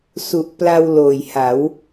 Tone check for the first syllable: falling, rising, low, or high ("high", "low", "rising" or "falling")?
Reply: low